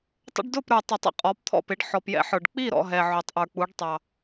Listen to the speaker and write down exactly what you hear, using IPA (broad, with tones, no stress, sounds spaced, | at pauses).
tˤ ə̰˦ ɖ d ʊ˥˨ p ɾ ə˞˨ tˤ ʊ˨˩˦ tˤ ə̰˦ qʼ ɔ˨˦ p t̪ʰ ɔ̰˥˨ p ɪ˨˦ ɖ ħ ɔ˨ p j ɛ̰˦ ħ ə˞˨ ɖ k͡p i˥˨ ɾ ɔ̰˥˨ ɦ ɛ˨ ʕ ʊ˨˩˦ tˤ ʔ ə˞˨ k͡p u˨˦ ɖ tˤ ɑ˨